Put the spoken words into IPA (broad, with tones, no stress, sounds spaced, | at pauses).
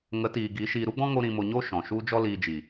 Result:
ŋ ə˨˦ t iː˨ ɡ i˨˦ ʃ iː˧ ɾ u˦ ɡ͡b ɔ̃˦ ŋ o˦ ɾ ĩ˧ m o˧ ɲ o˦ ʃ ɔ̃˨ ʃ u˦ d͡ʒ ɔ˦ l iː˧ d͡ʒ i˨